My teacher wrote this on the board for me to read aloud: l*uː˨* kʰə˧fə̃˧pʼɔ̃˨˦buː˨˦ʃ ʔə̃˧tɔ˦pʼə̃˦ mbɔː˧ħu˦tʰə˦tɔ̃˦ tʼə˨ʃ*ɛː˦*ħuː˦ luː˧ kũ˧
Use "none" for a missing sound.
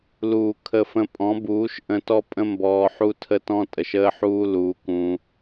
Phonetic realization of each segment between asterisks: uː˨, əː˦

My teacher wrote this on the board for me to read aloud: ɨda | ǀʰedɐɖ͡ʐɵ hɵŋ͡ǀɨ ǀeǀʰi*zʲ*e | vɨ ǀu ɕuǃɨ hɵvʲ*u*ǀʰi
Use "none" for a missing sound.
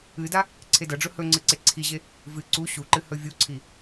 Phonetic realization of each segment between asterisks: ʑ, u

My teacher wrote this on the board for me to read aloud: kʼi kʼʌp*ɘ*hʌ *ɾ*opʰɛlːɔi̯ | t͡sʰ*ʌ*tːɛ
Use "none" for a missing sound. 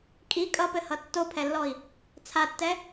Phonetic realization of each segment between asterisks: ɘ, tː, a

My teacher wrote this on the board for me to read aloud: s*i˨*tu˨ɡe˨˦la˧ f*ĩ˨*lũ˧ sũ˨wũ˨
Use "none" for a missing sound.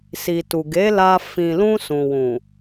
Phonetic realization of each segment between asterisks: i˨, ĩ˨

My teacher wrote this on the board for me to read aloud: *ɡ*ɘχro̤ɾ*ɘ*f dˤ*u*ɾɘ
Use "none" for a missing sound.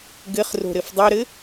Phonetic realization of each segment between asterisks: ɡ, ɘ, u

